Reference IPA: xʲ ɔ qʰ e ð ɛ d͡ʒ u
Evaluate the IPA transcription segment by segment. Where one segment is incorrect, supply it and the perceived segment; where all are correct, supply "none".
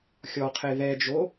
u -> o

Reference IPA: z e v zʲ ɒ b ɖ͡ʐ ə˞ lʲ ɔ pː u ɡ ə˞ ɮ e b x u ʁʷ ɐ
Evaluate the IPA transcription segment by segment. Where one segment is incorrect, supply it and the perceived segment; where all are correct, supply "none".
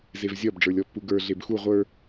ɐ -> ə˞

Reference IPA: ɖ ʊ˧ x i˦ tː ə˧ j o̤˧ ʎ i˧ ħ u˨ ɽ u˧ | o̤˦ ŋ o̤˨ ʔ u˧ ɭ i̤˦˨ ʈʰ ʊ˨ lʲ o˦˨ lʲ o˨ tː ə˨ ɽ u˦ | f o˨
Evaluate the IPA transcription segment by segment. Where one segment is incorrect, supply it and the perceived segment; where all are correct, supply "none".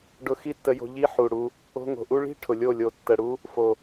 none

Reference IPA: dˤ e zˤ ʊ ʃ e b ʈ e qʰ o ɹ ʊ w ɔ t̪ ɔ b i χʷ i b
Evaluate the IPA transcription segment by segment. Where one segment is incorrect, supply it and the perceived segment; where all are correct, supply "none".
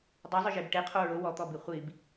ʃ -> ʒ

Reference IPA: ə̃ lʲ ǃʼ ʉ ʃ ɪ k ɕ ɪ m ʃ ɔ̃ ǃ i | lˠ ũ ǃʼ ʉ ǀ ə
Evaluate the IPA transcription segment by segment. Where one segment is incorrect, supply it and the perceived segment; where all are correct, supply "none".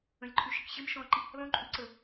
none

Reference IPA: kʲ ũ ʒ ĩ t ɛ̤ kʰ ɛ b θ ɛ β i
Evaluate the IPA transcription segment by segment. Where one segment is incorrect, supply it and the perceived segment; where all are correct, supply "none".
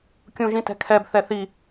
β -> θ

